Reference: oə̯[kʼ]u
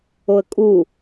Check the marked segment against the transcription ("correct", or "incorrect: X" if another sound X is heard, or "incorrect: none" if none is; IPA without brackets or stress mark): correct